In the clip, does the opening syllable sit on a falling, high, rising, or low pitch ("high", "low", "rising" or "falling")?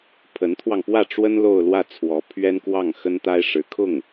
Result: rising